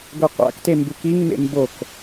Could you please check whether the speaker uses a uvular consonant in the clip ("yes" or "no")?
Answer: yes